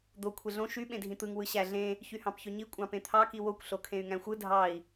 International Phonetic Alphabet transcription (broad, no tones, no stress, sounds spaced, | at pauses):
d̪ o kʷʰ e ɮ õ ʃ y ɓ ẽ dʱ ĩ t̪ ɯ ŋ w ɯ ɕ æ ɮ ẽ | ç y h ɑ̃ p ç ø ɲ i kʷʼ ɑ̃ p ẽ t̪ʰ ɑ k i w o kʷ ɬ o kʰ ẽ y̯ ŋ æ̃ xʷ ɯ dʱ ɑ i̯